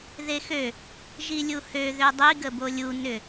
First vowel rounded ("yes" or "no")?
no